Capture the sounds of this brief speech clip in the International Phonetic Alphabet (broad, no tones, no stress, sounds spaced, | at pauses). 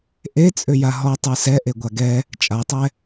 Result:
ʔ e t͡sʼ ʏ j a ɦ ɔ tˤ ə˞ s ɛ ʔ e ɡʷ a ɡ ɛ | t͡ʃʼ a tˤ ɛ